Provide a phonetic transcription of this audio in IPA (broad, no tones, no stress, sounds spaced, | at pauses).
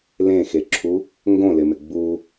l ẽ x e ǁʰ u | ŋ ɡ õ l ɪ m ɪ ɡ͡b u